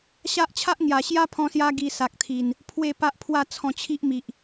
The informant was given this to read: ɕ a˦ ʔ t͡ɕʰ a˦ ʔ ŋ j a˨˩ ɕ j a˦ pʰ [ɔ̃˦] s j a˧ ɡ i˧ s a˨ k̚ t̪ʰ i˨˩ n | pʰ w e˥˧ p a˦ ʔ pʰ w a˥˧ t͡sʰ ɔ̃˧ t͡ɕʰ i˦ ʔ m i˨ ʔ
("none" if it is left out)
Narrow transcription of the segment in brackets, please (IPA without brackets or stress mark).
ɔ̃˧